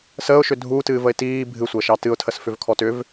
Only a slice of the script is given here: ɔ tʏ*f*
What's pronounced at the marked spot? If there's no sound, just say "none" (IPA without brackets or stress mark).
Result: v